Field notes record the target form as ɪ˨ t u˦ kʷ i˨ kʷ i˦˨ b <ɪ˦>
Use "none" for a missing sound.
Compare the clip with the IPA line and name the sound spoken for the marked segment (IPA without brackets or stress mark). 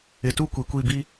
i˦